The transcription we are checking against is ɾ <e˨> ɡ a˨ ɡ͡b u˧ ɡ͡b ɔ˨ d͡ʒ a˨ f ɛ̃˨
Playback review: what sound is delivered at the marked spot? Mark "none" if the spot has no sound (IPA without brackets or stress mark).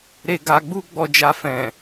e˨